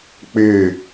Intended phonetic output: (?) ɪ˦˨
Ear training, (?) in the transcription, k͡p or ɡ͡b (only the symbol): k͡p